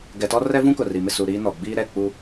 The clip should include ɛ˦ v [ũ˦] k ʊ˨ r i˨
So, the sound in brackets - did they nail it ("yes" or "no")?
yes